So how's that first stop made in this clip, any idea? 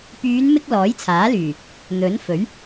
plain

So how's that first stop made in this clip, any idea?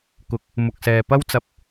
plain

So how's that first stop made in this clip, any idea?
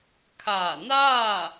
aspirated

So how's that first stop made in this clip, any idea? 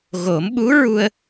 implosive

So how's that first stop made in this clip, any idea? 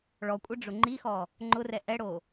ejective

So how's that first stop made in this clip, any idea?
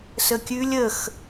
plain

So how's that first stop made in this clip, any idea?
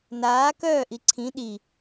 plain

